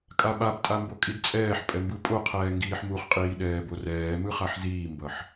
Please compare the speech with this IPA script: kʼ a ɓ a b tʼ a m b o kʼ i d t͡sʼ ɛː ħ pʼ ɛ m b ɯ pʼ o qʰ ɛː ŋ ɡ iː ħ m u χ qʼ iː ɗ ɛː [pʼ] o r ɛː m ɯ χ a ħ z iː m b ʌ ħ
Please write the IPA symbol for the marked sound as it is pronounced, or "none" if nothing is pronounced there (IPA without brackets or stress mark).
b